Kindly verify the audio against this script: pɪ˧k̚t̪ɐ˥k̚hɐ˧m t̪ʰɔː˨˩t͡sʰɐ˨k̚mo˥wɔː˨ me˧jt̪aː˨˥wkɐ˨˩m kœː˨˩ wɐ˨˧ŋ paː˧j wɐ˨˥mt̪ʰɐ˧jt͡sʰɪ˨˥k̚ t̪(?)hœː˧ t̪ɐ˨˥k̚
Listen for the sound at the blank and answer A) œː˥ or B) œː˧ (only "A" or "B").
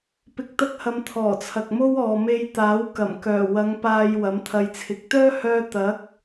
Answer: A